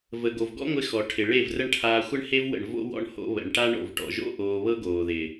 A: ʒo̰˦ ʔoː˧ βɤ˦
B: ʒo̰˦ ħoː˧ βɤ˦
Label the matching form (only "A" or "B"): A